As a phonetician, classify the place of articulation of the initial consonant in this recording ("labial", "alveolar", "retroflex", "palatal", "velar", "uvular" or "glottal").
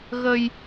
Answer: velar